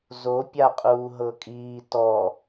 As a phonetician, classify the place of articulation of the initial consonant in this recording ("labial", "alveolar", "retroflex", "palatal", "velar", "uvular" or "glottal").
alveolar